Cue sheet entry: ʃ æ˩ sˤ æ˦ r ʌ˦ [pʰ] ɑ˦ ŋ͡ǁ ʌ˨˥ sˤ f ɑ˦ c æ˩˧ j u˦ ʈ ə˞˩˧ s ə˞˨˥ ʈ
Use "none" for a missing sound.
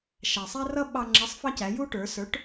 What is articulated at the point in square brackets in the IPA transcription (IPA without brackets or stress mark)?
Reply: ɓ